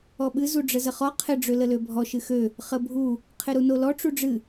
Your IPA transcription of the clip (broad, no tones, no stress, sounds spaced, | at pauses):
ɔ ɓ ɨ z u ɖ͡ʐ ə z ə χ ɔ qʰ ɪ ɖ͡ʐ ø l ə l ø bʱ ɔ ʃ ɨ x ø | χ ə bʱ u | qʰ ɪ ɾ u n o l ɔ ʈ͡ʂ u ɖ͡ʐ ɨ